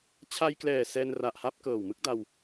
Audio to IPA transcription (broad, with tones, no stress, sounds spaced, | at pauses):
t͡ɕʰ a˧ j k l ɛː˨˩ s ɛː˧ n r a˨˩ ʔ h a˦˥ p̚ k ɤː˨˩ w m ɯ˦˥ k̚ d a˧ w